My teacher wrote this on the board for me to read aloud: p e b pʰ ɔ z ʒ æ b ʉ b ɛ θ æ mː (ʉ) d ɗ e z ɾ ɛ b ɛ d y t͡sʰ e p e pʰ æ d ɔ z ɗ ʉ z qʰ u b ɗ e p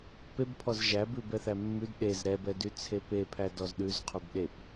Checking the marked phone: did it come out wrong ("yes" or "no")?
no